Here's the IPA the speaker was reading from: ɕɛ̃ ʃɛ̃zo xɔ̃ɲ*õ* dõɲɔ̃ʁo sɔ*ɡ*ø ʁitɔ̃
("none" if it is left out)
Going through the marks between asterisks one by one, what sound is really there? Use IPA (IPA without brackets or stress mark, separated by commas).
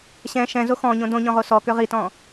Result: õ, k